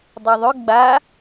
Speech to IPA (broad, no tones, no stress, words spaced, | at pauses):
dˤiðˤʏ ɡ͡ba